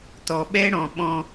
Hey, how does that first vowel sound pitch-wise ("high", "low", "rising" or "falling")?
low